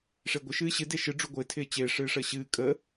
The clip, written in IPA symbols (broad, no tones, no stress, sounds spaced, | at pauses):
ʂ ɪː ɡʷ ɪ ʃ ɨː ɕ ɨ d e ʃ ɨ ɖ͡ʐ u ɡʷ ɪː tʰ ɪː t͡ɕ ɪː ʂ ɨː ʂ əː ɕ ɨː kʼ əː